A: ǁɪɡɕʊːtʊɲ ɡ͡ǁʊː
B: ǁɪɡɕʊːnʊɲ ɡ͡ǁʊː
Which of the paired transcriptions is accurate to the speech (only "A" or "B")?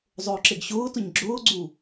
A